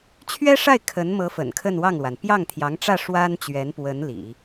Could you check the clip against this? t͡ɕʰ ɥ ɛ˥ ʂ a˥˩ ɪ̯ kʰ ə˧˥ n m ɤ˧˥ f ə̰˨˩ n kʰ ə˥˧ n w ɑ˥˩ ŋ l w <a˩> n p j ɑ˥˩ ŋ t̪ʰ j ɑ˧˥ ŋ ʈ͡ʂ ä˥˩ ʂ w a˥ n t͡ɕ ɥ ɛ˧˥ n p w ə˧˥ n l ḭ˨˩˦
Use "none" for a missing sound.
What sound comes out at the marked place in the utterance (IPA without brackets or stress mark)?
a˩